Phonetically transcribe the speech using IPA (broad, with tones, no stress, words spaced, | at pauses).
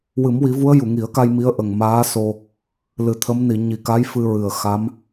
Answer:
wɨ˨˩˦mwi˨˩˦vu˧˥ə̯ ju˨˩˨ŋi˨˩˦ə̯ka˧j mi˧˥ə̯ʔə˨˩ŋ maː˧˥so˧ | lɨ˨˩t̪ʰə˧˥m ni˨˩˨ɲi˨˩ka˧˥j fɨ˧ɹɨ˨˩ə̯xa˧˥m